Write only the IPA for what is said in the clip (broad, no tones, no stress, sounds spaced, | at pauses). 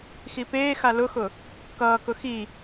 x i p eː x a l ʊ x ʊ | k ʌː k ʊ x i